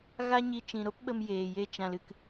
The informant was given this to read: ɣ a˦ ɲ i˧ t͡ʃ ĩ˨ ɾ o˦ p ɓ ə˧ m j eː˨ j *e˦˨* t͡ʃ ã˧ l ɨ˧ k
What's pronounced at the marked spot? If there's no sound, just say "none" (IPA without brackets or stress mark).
e˦˨